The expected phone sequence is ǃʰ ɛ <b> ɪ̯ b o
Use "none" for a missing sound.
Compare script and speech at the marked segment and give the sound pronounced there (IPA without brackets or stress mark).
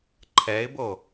none